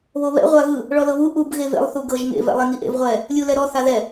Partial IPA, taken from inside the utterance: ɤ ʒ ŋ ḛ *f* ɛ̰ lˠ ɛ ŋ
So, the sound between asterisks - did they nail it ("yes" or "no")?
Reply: no